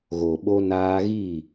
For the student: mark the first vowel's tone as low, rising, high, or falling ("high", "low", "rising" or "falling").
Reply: low